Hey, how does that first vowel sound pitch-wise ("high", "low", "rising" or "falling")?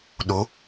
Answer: rising